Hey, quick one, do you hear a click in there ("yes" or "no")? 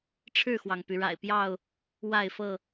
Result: no